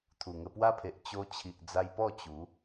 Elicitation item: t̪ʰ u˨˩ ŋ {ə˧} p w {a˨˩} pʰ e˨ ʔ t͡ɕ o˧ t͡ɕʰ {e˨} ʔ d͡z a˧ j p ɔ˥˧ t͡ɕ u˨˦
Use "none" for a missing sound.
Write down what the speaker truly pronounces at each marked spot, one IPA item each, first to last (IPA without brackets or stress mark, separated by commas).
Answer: ə˧, a˦, i˨